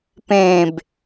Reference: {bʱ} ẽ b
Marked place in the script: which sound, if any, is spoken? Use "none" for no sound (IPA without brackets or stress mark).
p